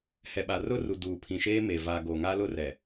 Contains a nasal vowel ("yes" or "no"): yes